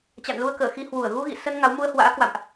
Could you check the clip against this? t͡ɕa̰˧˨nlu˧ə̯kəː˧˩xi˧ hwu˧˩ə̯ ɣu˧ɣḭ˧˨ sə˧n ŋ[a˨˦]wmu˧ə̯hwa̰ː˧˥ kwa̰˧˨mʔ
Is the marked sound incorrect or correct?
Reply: correct